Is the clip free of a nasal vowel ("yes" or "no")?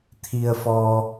yes